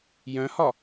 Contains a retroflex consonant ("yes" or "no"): no